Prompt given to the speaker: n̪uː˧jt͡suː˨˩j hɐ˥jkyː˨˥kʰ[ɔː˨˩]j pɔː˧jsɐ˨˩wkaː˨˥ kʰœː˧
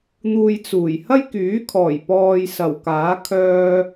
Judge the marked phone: correct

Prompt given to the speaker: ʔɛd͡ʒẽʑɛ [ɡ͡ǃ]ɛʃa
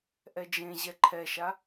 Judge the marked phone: incorrect: ǃʰ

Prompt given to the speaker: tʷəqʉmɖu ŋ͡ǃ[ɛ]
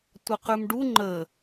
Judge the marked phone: incorrect: ə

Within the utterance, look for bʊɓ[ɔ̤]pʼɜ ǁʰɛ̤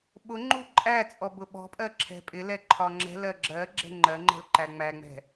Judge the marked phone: correct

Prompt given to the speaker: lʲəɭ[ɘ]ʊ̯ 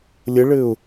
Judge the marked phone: correct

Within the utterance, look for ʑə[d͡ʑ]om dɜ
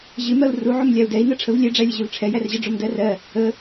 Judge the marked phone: incorrect: ɖ͡ʐ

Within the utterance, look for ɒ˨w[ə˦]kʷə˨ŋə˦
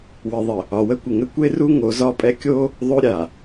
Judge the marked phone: correct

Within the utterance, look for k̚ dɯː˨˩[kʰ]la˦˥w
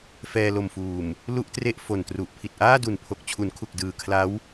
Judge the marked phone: correct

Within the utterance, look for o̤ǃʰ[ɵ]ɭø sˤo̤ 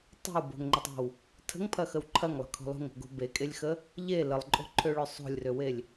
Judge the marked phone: incorrect: ø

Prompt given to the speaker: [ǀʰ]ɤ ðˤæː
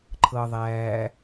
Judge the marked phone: incorrect: ǃʰ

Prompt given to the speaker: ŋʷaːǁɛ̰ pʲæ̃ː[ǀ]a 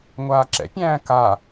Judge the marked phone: incorrect: k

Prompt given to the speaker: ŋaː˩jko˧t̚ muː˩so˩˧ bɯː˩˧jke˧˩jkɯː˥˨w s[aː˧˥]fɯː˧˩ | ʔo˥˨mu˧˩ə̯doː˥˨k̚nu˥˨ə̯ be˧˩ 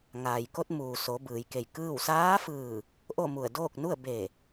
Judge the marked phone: correct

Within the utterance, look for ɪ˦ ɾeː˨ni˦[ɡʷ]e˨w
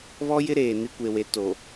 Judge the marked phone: incorrect: kʷ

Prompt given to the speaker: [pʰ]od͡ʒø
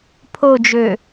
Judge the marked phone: correct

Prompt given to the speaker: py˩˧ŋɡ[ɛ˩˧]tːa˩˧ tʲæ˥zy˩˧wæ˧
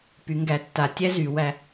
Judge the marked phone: incorrect: æ˩˧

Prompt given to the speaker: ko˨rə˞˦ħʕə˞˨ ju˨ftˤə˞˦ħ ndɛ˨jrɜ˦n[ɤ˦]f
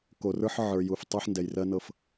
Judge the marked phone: correct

